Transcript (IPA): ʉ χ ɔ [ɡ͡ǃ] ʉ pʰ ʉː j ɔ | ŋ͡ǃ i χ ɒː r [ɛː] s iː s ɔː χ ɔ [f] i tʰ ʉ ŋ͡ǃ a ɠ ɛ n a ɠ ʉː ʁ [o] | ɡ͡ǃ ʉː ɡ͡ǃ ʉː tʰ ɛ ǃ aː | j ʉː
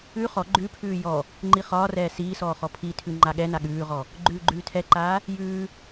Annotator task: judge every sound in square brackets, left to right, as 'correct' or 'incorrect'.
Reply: correct, correct, incorrect: pʰ, incorrect: ɔ

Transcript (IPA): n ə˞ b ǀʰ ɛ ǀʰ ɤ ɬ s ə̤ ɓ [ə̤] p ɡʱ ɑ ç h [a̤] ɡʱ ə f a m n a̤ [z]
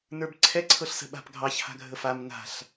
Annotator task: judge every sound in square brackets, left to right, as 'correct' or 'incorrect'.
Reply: incorrect: a̤, correct, incorrect: ɬ

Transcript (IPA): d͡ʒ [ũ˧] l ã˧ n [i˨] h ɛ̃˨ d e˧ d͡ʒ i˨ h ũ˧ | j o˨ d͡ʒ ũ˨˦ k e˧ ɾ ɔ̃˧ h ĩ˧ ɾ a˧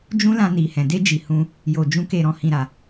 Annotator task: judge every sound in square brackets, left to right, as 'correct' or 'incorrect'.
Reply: incorrect: ũ˦, correct

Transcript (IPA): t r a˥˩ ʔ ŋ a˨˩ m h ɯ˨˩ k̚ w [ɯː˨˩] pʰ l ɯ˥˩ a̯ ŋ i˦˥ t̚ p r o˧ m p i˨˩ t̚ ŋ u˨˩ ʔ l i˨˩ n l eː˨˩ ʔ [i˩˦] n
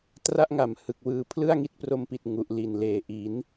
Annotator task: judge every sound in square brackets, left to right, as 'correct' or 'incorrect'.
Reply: correct, correct

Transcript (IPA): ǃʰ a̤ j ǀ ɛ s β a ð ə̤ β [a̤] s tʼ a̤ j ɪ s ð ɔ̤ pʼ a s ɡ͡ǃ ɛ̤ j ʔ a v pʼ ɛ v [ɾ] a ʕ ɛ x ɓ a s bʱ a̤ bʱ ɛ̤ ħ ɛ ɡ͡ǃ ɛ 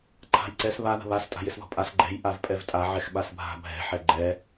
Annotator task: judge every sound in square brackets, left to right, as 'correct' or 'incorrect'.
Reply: incorrect: a, incorrect: tʼ

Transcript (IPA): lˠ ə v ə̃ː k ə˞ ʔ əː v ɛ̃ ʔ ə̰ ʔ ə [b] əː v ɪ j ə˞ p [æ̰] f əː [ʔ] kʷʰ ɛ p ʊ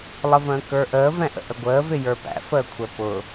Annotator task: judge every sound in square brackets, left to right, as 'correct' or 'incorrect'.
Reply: incorrect: ɡʷ, correct, incorrect: none

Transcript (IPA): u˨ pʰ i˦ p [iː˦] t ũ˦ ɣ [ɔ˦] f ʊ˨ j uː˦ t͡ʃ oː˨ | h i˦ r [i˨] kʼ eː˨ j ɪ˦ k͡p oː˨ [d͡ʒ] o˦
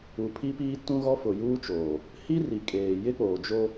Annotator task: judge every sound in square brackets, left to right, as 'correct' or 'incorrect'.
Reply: correct, correct, correct, correct

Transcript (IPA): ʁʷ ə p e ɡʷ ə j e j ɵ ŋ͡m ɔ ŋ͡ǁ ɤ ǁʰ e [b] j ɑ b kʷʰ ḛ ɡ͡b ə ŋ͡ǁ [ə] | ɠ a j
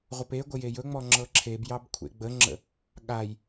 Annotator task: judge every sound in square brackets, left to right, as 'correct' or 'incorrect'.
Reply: correct, incorrect: ə̰

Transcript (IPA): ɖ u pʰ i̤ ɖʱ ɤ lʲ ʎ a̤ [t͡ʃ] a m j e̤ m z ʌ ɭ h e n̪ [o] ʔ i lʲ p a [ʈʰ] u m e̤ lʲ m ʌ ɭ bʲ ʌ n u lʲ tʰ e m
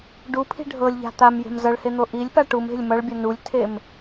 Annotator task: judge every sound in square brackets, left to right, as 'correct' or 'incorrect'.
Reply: incorrect: t̪, correct, incorrect: ʈ

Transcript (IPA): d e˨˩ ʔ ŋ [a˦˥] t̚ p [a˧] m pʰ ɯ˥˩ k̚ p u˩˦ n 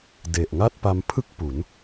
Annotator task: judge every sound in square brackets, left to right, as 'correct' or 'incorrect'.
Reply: incorrect: a˥˩, correct

